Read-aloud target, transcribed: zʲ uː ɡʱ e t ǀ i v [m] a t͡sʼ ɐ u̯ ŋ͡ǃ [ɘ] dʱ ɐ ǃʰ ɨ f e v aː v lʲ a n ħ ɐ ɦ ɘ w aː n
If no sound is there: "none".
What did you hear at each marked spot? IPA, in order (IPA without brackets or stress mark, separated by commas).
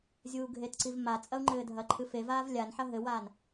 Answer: m, ɘː